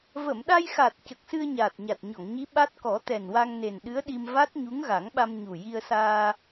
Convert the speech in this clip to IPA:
v ə˨˩˨ m ɗ a˧ j x a˨˩ t̚ c ə˨˩ k̚ s ɨ˧ ə̯ ɲ aː˨˩ t̚ ɲ a˨˩ t̚ ɲ ɔ˨˩˨ ŋ ɲ i˧˥ ɓ a˦˥ t̚ k ɔ˨˩˦ t̪ ɛ˨˩ n w a˧ ŋ n e˨˩ n ɗ ɨ˧˥ ə̯ ɗ i˧ m v a˦˥ t̚ ɲ u˧˥ ŋ ɣ a˨˩˦ ŋ ɓ a˧ m ɲ u˨˩ j i˧ ə̯ s aː˧

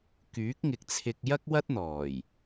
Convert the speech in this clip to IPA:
k yː˨˥ k̚ ŋ ɪ˨ k̚ t͡sʰ ɪ˧ k̚ j ɐ˥ k̚ w ɐ˥ t̚ n̪ ɔː˨˩ j

